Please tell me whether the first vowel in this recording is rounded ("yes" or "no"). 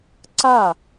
no